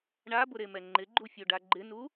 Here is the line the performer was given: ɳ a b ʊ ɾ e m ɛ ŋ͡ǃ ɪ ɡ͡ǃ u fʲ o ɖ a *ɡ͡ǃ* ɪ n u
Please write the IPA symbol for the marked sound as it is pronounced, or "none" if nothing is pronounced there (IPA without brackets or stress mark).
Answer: ɡ͡ǃ